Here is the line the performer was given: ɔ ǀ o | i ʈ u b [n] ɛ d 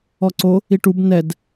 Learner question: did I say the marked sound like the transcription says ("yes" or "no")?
yes